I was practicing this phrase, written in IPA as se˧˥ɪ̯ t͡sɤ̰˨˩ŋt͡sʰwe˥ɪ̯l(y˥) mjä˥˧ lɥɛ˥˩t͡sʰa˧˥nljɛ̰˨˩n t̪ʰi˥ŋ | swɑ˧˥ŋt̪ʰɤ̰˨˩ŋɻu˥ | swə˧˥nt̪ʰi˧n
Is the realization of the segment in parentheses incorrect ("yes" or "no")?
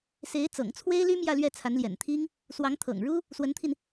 no